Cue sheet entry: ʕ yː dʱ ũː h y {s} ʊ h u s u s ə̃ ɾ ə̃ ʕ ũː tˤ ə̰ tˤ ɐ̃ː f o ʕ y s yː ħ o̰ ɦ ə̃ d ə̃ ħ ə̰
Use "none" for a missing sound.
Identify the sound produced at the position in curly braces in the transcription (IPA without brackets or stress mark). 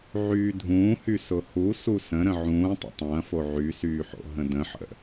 s